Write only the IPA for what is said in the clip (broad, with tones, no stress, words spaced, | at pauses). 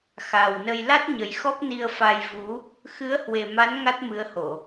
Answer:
xa˨˩wnə˧j la˦˥t̚ɲə˨˩j xɔ˦˥p̚ni˧ə̯fa˧j vu˨˦ | xɨ˨˦ə̯hwe˨˩ma˨˦n ŋa˦˥t̚mɨ˨˦ə̯ho˧˩˨